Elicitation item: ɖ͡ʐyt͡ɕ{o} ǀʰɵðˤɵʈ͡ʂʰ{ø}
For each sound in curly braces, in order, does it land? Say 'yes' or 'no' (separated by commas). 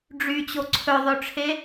yes, no